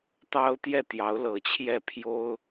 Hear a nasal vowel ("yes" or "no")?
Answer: no